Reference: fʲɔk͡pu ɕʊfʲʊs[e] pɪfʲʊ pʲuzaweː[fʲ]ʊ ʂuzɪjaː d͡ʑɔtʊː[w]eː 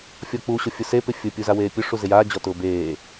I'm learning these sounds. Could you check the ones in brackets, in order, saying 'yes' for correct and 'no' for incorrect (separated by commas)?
yes, no, no